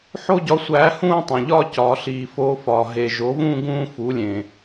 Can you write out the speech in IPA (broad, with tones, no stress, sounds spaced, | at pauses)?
ħ o˥˧ ɟ ɒ˨˥ sʷ æː˨˥ h ũː˥˧ tˤ æ̃˨˩ ʎ ɒː˥˧ c ɒː˩˧ ɬ iː˨˩ f oː˧ f ɒː˨˩ ɦ e˨˩ ʒ o˨˥ v ũː˥˧ ɡ ũː˥˧ f u˨˥ lʲ ẽ˨˩